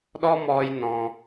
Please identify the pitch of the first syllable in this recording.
high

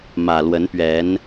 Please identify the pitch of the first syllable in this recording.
low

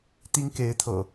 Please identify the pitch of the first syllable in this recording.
high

